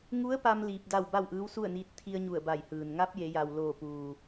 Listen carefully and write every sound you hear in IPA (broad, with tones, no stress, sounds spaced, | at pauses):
ŋ u˧˥ ə̯ p a˧ m l iː˧ p̚ d a˥˨ w b a˥˨ w ʔ ɯː˧˥ w s u˥˨ ə̯ n iː˧˥ t̚ t̪ʰ i˧ ə̯ ɲ u˧˩ ə̯ b a˧˩ j h ɯː˩ n ŋ a˧˥ p̚ j e˩˧ j a˩ w l oː˧˩ p uː˩